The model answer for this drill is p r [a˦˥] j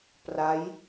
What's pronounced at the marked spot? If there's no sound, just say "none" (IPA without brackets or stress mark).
a˦˥